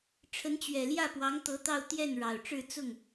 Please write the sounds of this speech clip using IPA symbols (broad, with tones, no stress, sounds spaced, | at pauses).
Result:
ʈ͡ʂʰ ə˧˥ n t͡ɕ ɥ ɛ˨˩ l j ä˥˩ p w ɑ˧˥ ŋ t̪ ɤ˧˥ t̪ ɑ˥˧ ʊ̯ t̪ j ɛ˥˩ n ɻ ɑ˨˩ ʊ̯ ʈ͡ʂ ɻ̩˥˧ t͡s ʊ˥˩ ŋ